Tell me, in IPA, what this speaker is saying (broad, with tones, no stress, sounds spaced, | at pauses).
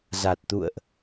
z a˨˩ t̚ t̪ ṵ˧˨ ə̯ ʔ